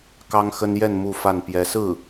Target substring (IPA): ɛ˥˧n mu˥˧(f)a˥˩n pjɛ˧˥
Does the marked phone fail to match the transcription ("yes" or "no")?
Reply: no